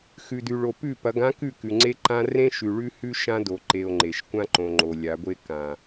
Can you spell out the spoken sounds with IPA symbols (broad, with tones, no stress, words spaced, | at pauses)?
xʉ˨dʉ˨ɭo˨ pʉ˦˨ pɐ˨˦ɡã˦kʉ˦˨ kʉ˨ŋ͡ǀe˦ ǃã˦ rẽ˦ʃʉ˨ɭʉ˦hʉ˦ ʃã˦do˨ǃe˨o̯ ŋ͡ǃe˨ʃ kʷã˦ǃõ˨ŋ͡ǃo˨ lʲa˨˦ɡʷe˦ kã˨